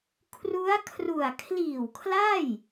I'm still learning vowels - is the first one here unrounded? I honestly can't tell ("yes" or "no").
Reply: no